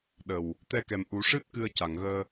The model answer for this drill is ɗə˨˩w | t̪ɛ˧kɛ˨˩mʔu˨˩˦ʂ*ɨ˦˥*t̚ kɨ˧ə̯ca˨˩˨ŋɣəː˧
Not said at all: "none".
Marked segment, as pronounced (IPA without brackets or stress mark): ɨ˦˥